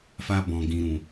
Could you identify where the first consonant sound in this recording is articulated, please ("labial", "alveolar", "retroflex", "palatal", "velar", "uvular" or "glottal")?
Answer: labial